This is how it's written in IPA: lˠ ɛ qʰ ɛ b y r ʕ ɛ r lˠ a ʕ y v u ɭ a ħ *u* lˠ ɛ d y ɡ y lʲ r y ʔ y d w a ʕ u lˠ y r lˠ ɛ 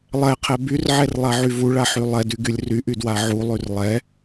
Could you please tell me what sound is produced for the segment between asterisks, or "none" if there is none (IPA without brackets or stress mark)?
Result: y